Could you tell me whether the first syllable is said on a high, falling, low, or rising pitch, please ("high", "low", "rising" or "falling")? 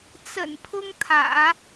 low